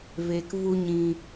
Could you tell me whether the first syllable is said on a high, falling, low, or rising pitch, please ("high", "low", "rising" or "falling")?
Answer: low